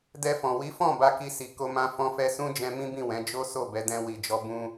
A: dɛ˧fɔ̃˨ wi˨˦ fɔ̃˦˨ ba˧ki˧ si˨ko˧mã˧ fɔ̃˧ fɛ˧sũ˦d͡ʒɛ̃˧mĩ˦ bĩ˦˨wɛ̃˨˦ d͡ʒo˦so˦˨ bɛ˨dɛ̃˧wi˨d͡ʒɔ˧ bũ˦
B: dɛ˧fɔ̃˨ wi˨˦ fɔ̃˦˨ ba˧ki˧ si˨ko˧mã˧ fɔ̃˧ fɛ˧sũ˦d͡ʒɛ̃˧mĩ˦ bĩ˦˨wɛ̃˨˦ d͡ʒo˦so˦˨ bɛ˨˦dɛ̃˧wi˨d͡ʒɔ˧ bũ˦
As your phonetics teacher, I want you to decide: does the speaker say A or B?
B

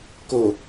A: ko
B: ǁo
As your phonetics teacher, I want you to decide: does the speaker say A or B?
A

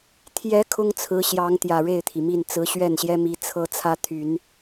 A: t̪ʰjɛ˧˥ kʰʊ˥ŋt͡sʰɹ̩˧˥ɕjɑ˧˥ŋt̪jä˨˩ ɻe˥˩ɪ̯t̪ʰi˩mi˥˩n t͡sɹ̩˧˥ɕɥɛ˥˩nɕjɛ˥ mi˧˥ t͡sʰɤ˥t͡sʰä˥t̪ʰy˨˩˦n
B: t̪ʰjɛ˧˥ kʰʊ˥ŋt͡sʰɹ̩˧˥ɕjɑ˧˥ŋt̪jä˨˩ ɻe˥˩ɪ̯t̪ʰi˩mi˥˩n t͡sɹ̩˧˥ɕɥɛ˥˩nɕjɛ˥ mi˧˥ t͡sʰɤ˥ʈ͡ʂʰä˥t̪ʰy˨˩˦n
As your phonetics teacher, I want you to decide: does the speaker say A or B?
A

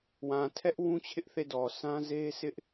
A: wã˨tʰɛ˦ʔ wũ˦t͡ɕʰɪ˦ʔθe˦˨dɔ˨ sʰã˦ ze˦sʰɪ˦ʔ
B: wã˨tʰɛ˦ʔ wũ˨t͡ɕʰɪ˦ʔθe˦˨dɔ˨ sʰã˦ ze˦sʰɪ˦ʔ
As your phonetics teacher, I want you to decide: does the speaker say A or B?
A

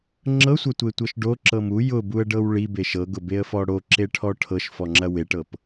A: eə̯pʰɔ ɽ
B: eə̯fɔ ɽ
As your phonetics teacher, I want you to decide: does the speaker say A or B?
B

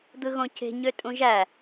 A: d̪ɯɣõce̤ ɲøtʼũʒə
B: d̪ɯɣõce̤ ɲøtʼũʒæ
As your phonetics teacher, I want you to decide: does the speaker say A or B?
B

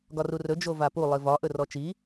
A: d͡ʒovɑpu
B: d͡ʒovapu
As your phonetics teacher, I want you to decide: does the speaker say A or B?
B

